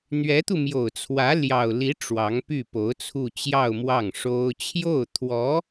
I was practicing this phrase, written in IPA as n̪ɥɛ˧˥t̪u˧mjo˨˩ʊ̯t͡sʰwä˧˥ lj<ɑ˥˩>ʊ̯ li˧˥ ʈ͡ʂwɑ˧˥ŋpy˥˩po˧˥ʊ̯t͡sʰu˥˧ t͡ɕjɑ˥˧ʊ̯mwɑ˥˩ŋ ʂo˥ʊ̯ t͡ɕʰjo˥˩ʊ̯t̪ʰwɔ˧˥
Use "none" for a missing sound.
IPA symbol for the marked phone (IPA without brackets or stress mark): ɑ˨˩